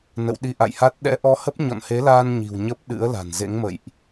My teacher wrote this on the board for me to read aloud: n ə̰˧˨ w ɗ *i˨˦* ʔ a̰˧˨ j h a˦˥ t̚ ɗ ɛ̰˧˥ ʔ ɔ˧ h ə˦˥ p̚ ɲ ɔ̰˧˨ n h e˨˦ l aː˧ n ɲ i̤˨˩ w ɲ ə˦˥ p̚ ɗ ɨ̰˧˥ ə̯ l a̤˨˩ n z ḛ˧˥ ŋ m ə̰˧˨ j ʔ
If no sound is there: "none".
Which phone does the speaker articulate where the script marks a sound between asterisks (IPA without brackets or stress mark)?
i˧